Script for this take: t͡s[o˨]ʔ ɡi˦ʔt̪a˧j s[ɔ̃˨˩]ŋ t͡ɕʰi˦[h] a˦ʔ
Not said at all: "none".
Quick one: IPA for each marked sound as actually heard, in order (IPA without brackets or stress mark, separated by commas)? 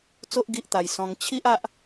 o˦, ɔ̃˧, ʔ